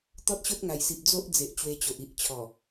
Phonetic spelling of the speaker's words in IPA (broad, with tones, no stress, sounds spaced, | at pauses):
t̪ ɔ˦ t̚ ɕ o˦ t̚ ŋ a˨˩ j s i˨ p̚ d͡z o˦ ʔ d͡z e˨ ʔ t͡ɕ w e˧ t͡ɕ o˨ ʔ i˨ ʔ t͡ɕʰ ɔ˨˩